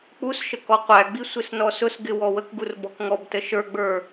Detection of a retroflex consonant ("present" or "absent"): absent